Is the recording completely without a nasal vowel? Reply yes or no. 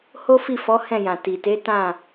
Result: no